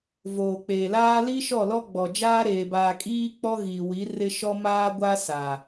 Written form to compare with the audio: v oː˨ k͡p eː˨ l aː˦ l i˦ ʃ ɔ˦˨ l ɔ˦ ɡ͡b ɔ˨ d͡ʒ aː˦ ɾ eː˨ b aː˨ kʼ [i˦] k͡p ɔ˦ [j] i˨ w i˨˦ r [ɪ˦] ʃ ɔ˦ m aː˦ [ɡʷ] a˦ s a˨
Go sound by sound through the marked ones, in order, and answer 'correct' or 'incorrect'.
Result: incorrect: iː˦, incorrect: ɣ, correct, correct

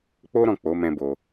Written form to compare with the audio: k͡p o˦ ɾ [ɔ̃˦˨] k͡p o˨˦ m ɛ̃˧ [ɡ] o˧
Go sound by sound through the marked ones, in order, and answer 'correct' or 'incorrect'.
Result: correct, incorrect: b

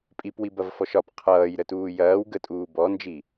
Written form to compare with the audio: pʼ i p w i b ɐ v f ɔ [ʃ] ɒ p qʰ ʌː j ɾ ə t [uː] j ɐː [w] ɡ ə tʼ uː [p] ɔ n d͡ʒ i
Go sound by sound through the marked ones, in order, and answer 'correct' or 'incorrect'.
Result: correct, correct, correct, incorrect: b

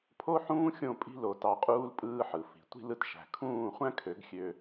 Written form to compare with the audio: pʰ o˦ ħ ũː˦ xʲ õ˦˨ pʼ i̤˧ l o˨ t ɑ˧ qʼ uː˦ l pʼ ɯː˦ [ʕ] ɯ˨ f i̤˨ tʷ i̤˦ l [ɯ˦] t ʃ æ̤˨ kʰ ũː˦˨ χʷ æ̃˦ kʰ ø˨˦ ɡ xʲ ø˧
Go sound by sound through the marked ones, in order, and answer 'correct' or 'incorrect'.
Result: incorrect: ħ, incorrect: ɯ˧

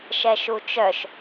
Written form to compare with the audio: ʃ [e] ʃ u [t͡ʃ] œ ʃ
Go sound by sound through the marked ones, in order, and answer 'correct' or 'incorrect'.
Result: incorrect: ɛ, correct

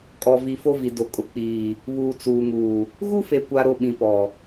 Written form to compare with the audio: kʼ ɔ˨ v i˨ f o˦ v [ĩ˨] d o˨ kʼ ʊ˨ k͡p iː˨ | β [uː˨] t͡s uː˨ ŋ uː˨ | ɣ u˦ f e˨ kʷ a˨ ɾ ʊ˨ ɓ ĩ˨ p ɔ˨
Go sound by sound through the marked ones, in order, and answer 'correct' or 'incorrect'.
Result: incorrect: i˨, correct

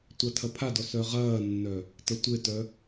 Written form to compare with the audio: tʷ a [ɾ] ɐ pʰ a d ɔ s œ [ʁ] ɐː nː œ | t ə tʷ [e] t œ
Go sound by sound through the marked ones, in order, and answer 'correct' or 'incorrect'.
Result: incorrect: tʰ, correct, correct

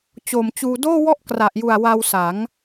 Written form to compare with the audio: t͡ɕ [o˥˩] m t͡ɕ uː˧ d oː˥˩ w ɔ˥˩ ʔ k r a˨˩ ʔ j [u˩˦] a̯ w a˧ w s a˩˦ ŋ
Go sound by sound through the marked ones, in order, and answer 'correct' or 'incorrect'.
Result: incorrect: o˨˩, incorrect: u˨˩

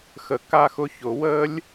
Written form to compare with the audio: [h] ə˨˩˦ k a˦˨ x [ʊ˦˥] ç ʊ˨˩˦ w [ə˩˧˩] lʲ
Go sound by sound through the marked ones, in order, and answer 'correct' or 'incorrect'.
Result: incorrect: x, incorrect: ʊ˧˥˧, incorrect: ə˦˥

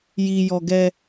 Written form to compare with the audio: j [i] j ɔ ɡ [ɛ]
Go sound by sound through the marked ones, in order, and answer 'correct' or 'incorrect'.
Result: correct, correct

